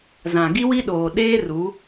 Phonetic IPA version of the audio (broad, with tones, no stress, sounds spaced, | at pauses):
z ã˨ ɡ i˦ w i˦ ɗ oː˨ ɗ eː˦ r u˨˦